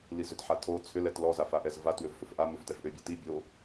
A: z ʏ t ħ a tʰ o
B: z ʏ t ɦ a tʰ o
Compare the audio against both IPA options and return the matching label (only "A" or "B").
A